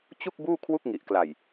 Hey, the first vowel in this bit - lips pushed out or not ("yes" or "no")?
yes